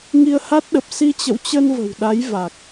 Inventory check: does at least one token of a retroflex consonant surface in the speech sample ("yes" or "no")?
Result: no